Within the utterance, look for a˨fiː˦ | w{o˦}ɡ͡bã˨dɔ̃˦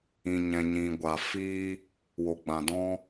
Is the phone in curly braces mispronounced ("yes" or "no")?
yes